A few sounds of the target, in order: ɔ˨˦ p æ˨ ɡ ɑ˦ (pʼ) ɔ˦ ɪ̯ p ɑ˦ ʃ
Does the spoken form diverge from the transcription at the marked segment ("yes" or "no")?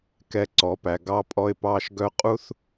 no